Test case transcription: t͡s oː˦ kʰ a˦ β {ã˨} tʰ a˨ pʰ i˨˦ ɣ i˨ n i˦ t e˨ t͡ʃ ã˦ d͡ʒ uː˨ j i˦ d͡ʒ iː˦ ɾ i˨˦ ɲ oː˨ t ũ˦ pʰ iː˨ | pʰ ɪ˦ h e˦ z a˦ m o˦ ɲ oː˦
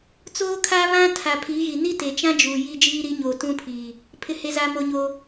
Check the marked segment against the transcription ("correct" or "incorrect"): incorrect